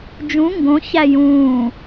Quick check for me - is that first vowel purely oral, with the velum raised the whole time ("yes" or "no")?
no